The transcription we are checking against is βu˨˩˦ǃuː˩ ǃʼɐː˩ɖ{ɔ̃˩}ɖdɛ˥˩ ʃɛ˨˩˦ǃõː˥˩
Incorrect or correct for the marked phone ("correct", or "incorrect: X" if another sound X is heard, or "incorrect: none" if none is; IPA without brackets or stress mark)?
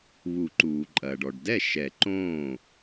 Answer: incorrect: ɔ˩